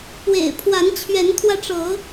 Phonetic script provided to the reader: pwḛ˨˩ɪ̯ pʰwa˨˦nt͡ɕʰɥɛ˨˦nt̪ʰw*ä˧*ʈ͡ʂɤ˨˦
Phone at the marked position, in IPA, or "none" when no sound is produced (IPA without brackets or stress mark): ä˧